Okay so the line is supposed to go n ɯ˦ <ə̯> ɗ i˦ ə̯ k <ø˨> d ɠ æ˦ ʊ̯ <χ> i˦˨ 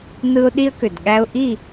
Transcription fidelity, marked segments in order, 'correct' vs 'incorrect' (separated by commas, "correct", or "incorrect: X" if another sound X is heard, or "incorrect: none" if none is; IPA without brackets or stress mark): incorrect: ʊ̯, correct, incorrect: ʔ